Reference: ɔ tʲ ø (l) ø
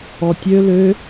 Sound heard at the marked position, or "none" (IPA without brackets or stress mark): l